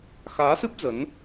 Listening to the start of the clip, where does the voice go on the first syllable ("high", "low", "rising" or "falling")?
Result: rising